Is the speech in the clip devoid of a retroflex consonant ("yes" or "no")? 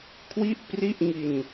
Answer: yes